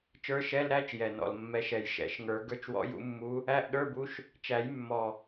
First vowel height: mid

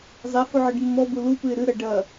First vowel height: mid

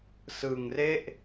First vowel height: high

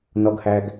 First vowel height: mid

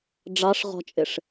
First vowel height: low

